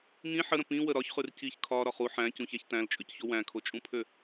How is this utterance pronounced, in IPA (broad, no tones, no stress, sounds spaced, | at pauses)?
ŋ ĩ ħ ə ɾ ə̃ p ĩ w ə ɾ ɒ ç χ ʉ r c i ç kʰ ɒ ɾ ɒ χ u ħ æ̃ c ũ ç æ ç t æ̃ l t͡ʃʼ ʉ c ç o w æ̃ kʰ o t͡ʃʼ ũ pʰ ø